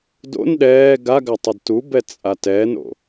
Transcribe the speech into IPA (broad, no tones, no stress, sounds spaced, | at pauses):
d o̰ n ɗ ɛː ɡ a ɡ a tˤ ʌ d t u b ɛ t͡sʼ a t ɛ n o̰